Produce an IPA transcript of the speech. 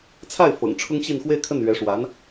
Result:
t͡sʰa˥˩ɪ̯fɤ̰˨˩ŋ ʈ͡ʂʰʊ˥ŋɕi˥˧n xwe˥˧ɪ̯kʰə˥˩nɥɛ˧˥ ʂwa˧˥n

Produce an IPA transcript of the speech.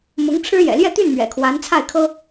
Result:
mʊ˧˥ŋʈ͡ʂʰɻ̩˥jɛ̰˨˩ ljɛ˥˧t̪y˥˩n mɥɛ̰˨˩kʰwa˧˥nt͡sʰa˥˩ɪ̯kʰɤ˥

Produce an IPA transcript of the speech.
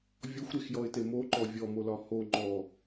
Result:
vʲɔxʷɾexjɔɪ̯te moǃɔ vʲɔmolɒ ho ŋ͡ǃɔ

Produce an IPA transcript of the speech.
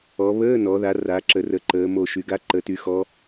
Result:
ɔ˩˧βəː˧˥˧nɔ˩˧ða˩˧ ra˩˧ǁə˩˧rə˩˧ ǃəː˩˧mo˧˩ʃy˩˧ɡa˧˥˧ ǃə˩˧ty˩˧xɔ˩˧

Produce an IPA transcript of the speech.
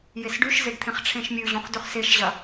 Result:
jesɖʉʃzeɖt̪ʰẽχ ʈ͡ʂʰẽʃmʲʉ ʑõχdʉχseʃʑɐ

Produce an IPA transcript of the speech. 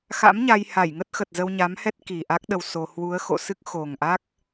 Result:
xa̰˧˥m ɲa˧jha˧˩jŋə˦˥t̚ xə˨˩t̚zə˧wɲa˨˦mhɛ˦˥t̚ ki˨˩ʔa˦˥k̚ɗə˧w so˧ hwu˨˦ə̯ xo̰˧˨sɨ˦˥k̚ xo˨˩ŋʔa˦˥k̚

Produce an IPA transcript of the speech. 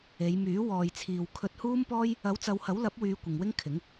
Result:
e˨˧jmyː˨˥ wɔː˨jt͡sʰiː˨w kʰɵ˧t̚huː˥mpɔː˥j | ɐ˨˥wt͡sɐ˨˧whɐ˨˥w lɐ˨˥p̚wyː˨˧ kʷɪ˨ŋwɪ˥ŋkʰɪ˨˥ŋ

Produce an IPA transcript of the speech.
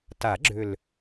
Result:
ta˨˩˦ɡ͡ǁʏ˨˩l

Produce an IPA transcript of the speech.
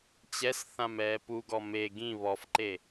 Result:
t͡ɕɛsθãm ɛːpuɡɔ me ɡĩ βɔfǃe

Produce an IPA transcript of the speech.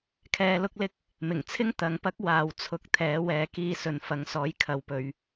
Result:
kʰɛː˧lʊ˥k̚lɪ˥k̚ | mɪ˨˩ŋt͡sʰɪ˥ŋ t̪ɐ˨ŋpɐ˥k̚ waː˨w t͡sʰʊ˧k̚t̪ʰɛː˨˥ wɛː˨kiː˧sɵ˨n fɐ˨˧ŋsɔː˨˥jkʰɐ˨˧wpɵ˨˧ɥ

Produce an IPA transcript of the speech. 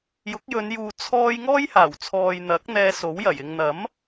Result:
jʊ˨˥k̚jɵ˨˧njuː˨ t͡sʰɔː˧j ŋɔː˥jhaː˨˩w t͡sʰɔː˨jn̪ɐ˨˥k̚ n̪ɛː˧so˨˥wjɐ˨˩j ɪ˨ŋn̪ɐ˨˥m

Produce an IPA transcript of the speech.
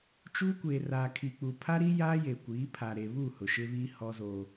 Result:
t͡ʃuː˦kʷeː˨ raː˨kʰi˨k͡pu˨ pʰa˦ɾi˦ jaː˦je˨kʷiː˨˦pʰa˨ ɾe˨βu˦˨ hʊ˨ʃɪ˦βiː˦ hɔ˦zoː˦

